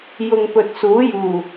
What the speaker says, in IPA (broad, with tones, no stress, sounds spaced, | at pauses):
j ʊ˨ ŋ p ɵ˨ t̚ s uː˨˥ j uː˨˩